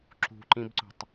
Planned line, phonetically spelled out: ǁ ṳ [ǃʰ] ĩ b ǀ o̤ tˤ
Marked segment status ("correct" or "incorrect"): incorrect